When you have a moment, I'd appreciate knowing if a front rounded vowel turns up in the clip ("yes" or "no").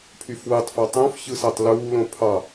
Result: yes